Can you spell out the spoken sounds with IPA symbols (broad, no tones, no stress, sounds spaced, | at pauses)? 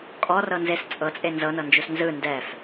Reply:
kʼ ɔ r ɤ n z e s t͡sʼ ɤ t͡sʼ e n z ɤ n ɤ n d͡ʒ u s n z ɯ n d ɛ f